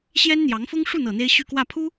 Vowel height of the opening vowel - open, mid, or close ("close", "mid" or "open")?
mid